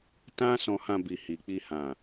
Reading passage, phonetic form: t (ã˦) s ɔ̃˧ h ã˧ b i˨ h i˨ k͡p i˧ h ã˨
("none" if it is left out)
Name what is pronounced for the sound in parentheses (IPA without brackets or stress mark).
ã˦